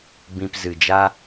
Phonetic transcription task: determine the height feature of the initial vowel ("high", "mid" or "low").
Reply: high